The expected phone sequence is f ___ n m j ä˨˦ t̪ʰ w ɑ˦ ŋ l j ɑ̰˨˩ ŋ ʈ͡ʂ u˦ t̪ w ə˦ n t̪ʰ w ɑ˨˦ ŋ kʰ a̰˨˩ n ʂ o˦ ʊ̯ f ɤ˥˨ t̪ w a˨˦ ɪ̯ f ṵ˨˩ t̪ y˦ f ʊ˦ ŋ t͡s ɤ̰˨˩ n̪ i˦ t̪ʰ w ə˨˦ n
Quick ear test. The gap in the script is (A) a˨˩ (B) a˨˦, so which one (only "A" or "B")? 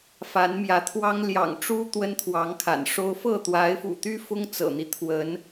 B